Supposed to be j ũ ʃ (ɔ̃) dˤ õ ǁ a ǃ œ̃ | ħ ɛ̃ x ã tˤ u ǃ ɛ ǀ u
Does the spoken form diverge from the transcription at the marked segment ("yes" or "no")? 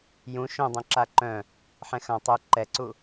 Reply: yes